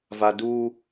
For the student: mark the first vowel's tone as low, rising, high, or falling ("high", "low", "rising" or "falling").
high